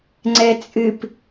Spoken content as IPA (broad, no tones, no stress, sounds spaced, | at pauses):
ŋ͡ǀ ɛ t͡sʼ ɨ p